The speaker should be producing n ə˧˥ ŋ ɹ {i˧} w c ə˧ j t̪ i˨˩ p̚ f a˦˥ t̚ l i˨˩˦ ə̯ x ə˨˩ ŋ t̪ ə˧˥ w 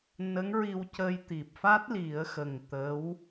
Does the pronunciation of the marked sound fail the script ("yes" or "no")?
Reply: no